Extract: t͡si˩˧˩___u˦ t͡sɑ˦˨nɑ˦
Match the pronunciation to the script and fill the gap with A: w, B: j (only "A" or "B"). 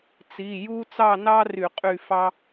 B